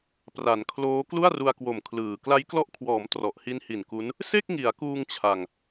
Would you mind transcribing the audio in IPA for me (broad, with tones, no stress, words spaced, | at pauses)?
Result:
pra˩˦nkʰloː˦˥ klu˥˩a̯ru˧a̯kwo˨˩m kʰlɯː˨˩ kla˦˥jklɔ˦˥ʔkʰwɔː˩˦m trɔ˨˩ʔhi˦˥nhi˨˩nku˦˥n | se˥˩k̚ŋi˩˦a̯kuː˧ŋ t͡ɕʰa˨˩ŋ